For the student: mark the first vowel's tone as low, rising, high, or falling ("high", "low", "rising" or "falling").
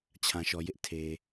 low